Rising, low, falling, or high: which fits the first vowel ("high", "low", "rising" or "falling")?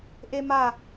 high